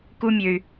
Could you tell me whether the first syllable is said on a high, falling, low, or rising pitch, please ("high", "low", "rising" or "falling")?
high